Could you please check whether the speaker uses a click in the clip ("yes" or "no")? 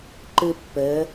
yes